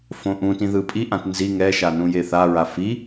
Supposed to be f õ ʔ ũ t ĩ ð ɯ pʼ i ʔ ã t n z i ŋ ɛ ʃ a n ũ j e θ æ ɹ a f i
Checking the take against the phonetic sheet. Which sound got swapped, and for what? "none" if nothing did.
æ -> a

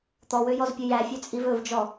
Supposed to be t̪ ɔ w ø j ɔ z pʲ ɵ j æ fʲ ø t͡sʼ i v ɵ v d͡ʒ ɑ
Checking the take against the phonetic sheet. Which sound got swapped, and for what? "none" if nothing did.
ɑ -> ɔ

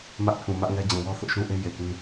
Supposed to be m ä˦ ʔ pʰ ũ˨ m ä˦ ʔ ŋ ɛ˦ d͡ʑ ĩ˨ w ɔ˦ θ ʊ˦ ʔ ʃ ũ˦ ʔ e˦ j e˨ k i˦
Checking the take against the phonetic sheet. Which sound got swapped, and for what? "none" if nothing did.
i˦ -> ĩ˦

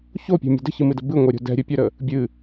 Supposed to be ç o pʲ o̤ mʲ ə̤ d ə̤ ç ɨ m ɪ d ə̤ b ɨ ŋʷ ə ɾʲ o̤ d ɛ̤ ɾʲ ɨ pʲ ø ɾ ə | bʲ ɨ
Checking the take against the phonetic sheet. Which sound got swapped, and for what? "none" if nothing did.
ɪ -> ɨ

